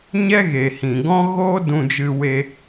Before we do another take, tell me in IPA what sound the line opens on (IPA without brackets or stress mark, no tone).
ɲ